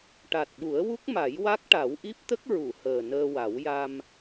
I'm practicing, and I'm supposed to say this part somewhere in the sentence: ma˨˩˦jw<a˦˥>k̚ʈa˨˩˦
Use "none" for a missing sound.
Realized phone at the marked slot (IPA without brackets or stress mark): a˦˥